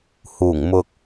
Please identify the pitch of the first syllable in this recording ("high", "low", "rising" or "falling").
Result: low